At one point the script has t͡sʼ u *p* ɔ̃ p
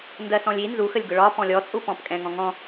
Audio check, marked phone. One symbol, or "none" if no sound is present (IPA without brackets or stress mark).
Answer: p